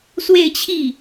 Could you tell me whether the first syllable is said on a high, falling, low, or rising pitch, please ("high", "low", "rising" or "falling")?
falling